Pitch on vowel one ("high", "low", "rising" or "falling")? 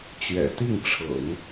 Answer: low